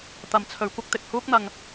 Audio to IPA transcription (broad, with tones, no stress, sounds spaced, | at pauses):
t̪ ɐ˧ m t͡sʰ ɵ˧ ɥ kʷ ɐ˥ k̚ t̪ ɪ˨ k̚ h uː˥ k̚ n̪ ɐ˧ ŋ